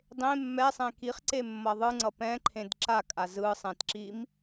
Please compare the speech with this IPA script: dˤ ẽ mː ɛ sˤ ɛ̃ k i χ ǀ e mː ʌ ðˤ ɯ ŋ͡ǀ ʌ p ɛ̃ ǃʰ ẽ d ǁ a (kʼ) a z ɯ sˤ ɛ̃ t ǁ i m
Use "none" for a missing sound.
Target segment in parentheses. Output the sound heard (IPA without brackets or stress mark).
kʼ